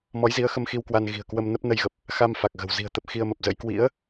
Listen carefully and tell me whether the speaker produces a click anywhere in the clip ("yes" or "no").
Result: no